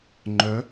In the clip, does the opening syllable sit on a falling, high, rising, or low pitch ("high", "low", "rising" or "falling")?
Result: rising